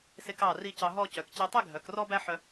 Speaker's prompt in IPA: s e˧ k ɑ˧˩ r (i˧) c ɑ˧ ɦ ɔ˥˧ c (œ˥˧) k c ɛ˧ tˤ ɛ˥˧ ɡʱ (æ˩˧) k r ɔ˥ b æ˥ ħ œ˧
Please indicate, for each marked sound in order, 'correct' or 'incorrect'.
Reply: correct, incorrect, incorrect

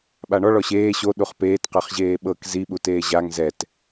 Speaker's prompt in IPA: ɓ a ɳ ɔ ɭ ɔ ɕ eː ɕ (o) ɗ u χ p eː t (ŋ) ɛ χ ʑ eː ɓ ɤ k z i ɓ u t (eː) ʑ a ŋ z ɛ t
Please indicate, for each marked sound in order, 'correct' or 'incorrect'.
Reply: correct, incorrect, correct

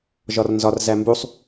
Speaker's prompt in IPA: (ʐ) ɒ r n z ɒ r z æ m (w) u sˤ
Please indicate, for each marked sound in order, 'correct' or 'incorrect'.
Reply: incorrect, incorrect

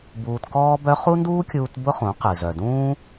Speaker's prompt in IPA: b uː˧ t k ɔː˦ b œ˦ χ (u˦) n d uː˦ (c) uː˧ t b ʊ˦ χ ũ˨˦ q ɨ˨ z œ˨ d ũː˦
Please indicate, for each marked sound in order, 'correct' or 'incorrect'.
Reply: correct, incorrect

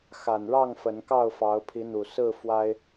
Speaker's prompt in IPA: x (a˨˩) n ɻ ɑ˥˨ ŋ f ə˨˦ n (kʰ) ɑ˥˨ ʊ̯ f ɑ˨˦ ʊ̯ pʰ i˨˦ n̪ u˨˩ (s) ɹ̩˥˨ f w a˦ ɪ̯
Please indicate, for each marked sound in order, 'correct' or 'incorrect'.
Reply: correct, incorrect, correct

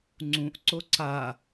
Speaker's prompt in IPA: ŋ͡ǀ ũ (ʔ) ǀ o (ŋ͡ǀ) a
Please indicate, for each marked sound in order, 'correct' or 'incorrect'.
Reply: correct, incorrect

